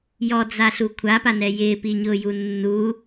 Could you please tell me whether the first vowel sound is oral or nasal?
oral